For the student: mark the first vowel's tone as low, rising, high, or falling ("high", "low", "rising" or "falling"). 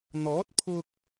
rising